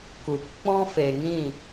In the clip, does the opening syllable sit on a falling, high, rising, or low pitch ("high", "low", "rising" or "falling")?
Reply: low